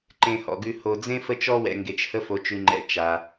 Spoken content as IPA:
ǃẽ˨hɔ̰˩ɡʉ˨ ho˨d͡zẽ˥ fə˦t͡ʃɔ˦wɛ̰˨ ŋɡe˨t͡ʃhə˦ fo˨t͡ʃʉ˨ŋ͡ǃɛ̰˨ t͡ʃa˩

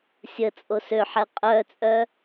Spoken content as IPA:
sʲə t͡sʼosøħɛ qʼœt͡sʼœ

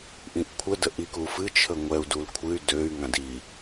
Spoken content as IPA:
ʔĩʔkʷʰə dəʔikufɨ t͡ʃʰəŋʷɛu̯ dulkʷʰɨy̯ døy̯ ŋãdi

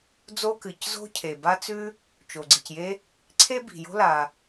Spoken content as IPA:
d͡zo˥ kɨ˩czo̤˥ cʰe˩ba˥t͡sʉ˥ | t͡ʃo˩ɡ͡ǀi˩cje˥ | ǀʰe˥bi̤˩ jo̤˥la˩

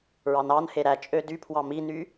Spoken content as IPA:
ɹɑnɑnhe ɾæt͡ʃʼø dypʰwɑ miny

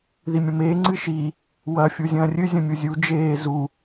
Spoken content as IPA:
ðimʲɐ̃meː ŋ͡ǀɨʃi | wɐ fʲuzʲɐ̃ːrʲɨ zʲɐ̃mʲuzʲu d͡ʒeː zu

